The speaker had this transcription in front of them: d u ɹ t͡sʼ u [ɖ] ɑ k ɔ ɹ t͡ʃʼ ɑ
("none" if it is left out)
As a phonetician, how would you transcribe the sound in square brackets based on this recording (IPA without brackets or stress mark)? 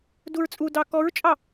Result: d